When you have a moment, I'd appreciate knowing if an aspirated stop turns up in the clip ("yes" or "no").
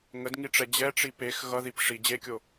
no